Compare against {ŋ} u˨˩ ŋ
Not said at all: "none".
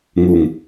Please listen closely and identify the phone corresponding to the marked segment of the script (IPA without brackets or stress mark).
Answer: ŋ